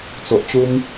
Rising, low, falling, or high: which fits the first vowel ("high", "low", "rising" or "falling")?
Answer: low